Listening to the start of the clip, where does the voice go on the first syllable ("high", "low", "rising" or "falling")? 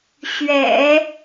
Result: low